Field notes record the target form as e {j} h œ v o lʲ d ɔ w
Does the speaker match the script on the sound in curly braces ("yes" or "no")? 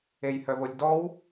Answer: yes